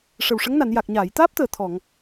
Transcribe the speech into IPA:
ʂ ə˨˩ w ʂ ə˧˥ ŋ n a˨˩˨ n j a˨˩ k̚ ɲ aː˨˩˨ j t̪ aː˦˥ p̚ t̪ əː˨˩ t̪ʰ ɔ˨˩˨ ŋ

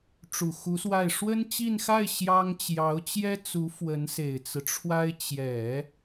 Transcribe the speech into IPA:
ʈ͡ʂ u˨˩ x u˧˥ s w a˥˩ ɪ̯ ʂ w ə˥ n t͡ɕ i˥˧ n x a˥˩ ɪ̯ ɕ j ɑ˥ ŋ t͡ɕ j ɑ˧˥ ʊ̯ t͡ɕ j ɛ˥ t͡s u˧˥ f w ə˧˥ n s e˨˩ ɪ̯ t͡s ɹ̩˦ ʈ͡ʂʰ w a˥ ɪ̯ t͡ɕ j ɛ˨˩˦

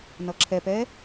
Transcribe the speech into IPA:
n ʌ ǁʰ ɛ p ɛ

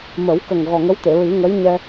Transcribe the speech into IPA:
m ə˨˩˦ w k ə˨˩ ŋ ɣ ɔ˨˩ ŋ ə˧˥ w t̪ e˨˩˨ ɹ i˨˩˦ ŋ ə˧˥ j ɲ ɛ˧

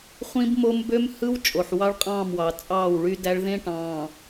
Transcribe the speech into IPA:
χʷ ĩ˦ b m o˦ m b ø˦ m h ɯ˦ w t͡ʃʼ o˨ ħ w ɑ˦ ɭ qʼ ɑ̃ː˦˨ m w ɑ˨ t͡sʼ ɑː˦˨ w ɭ y˦ d æ˦ ɭ ð ẽ˦ ʈ ɑ̃ː˨

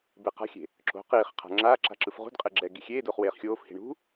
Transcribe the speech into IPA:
b e q a̤ xʲ e̤ | ǁ o̤ q iː χ qʰ a̤ ŋ͡ǁ aː ǁ a̤ ǁ ɯ f ʁ ṳ d qʼ e ɡ͡ǁ ɛː ɡ i xʲ eː d oː χ w eː χ xʲ oː f h i̤ ɳ ṳ

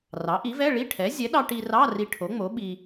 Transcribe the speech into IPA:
r ɑ˩˥ ʔ i˩˥ v ɛ˧˥˧ ɭ i˧˥˧ ʈʰ ɛ˩˥ zʲ ɛ˩˥ ɗ ɑ˧ ʈ i˧ r ɑ˧˥˧ r i˧ ʈʰ o˩˥ ŋ͡m o˩˥ ɓ i˧

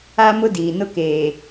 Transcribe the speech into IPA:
a˦ m ʊ˦ d iː˨ n ʊ˦ k eː˨

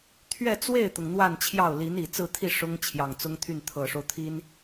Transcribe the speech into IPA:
t̪ʰ ɥ ɛ˥˧ t͡s w e˥˩ ɪ̯ t̪ ʊ˩ ŋ n̪ w a˥˧ n t͡ɕʰ j ɑ˥˩ ʊ̯ l i˧˥ n i˨˩ t͡s ɹ̩˥˧ t̪ʰ i˥˩ ʂ ʊ˥ ŋ t͡ɕʰ j ɑ˨˩ ŋ t͡s ʊ˥ ŋ t̪ʰ y˥˩ n t̪ʰ ɤ˨˩ ʂ o˦ ʊ̯ t̪ʰ i˥ n

